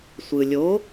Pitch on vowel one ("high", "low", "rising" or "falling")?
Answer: low